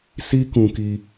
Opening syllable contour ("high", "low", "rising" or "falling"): high